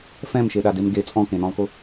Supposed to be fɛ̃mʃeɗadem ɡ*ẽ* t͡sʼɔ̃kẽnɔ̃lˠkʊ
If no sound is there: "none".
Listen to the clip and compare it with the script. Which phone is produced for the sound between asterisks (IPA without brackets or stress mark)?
e